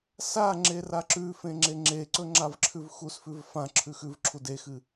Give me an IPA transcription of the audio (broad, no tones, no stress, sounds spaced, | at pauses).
s a ŋ͡ǁ e r a ǁ ʉ f ẽ ŋ͡ǁ e ŋ͡ǁ e ǀ ɵ ŋ͡ǁ a v ǁʰ ʉ v x u s f ʉ v f ã ǁʰ ʉ x ʉ v ǁʰ u d e x ɨ